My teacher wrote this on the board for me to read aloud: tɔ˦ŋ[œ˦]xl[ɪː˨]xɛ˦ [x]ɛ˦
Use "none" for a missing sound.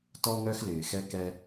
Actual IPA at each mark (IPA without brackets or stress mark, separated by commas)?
œ˦, ɪː˨, k